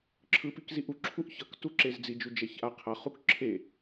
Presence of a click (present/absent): present